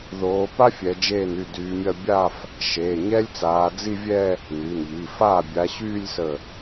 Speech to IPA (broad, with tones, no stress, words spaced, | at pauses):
ðoː˨˦pa˥ fʲɛ˨˦d͡ʒeː˥˩ny˥˩ dyː˨˦mʲɐ˥˧ bʲa˥˧f | ʃeː˩˧˩ɲɛ˥lʲt͡saː˨˦ d͡zi˥˧vʲɛ˥˧ | ny˩˧˩nʎi˩˧˩faː˥˩ bʲa˨˦ɕyː˥˧lʲsə˧˩